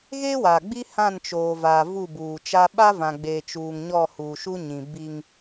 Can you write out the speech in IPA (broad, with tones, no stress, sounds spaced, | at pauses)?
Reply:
ɣ eː˦ w a˨ ɡ͡b i˦ h ã˦˨ n t͡ʃ oː˨ v aː˨ v u˦˨ b uː˨ t͡ʃ a˦ ɓ a˦ v ã˨ ɡ͡b eː˨ t͡ʃ uː˨ ŋ ɲ ɔ˦˨ h uː˨ ʃ u˦ ɲ ĩ˨ b i˦ ŋ